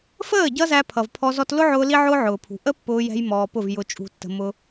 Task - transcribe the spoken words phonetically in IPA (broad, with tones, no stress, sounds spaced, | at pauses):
f əː˦˨ ɟ ʌ˦ z æ˧ pʰ ʌ˨ v pʰ ɔ˧ z ɔ˧ t l ʊ˦ ʕ ʊː˧ l i˦ ʕ ʊː˦ ʕ ʊː˨ pʰ ṳ˨ ʔ ə˦ pː ʊː˧ j ɛ̤˧ j m ɔː˧ p ʊ˦˨ v j ʊ˧ t͡ʃʼ ṳ˧ tː ə̤˧ m ʊ˦